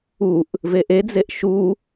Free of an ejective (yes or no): yes